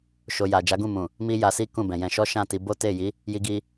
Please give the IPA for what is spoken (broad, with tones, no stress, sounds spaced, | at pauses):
ʃ o˨ j a˨ d͡ʒ a˨˦ ɡ ũ˦˨ m ũ˨ | m i˦ j a˧ s i˦ k ũ˦˨ b ɛ̃˨ j ɛ̃˧ ʃ ɔ˦ ʃ ã˦˨ t i˧ b o˦ t e˦˨ j i˨˦ | j i˧ ɡ i˧